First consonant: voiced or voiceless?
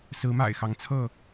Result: voiceless